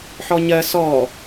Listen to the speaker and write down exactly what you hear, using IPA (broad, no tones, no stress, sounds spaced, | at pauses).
ħ ɔ ɲ ɜ s ɔ